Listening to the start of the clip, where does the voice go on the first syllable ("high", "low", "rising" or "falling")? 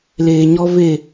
low